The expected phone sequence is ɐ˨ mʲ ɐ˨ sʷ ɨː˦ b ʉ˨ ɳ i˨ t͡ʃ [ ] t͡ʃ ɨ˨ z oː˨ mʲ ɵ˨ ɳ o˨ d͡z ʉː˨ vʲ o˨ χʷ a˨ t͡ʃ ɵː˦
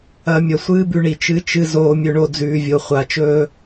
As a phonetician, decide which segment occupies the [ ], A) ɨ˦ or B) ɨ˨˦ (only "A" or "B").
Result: B